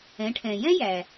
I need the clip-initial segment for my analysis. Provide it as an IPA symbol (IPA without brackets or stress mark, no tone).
ɛ̃